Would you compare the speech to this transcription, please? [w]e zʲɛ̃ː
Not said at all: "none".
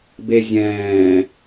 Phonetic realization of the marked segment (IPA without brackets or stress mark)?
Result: b